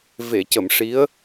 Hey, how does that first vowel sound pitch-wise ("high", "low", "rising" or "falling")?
low